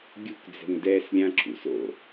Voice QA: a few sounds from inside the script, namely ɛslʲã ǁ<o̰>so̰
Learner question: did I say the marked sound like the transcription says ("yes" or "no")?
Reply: no